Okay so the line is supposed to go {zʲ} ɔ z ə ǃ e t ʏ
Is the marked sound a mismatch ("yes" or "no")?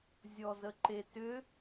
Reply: no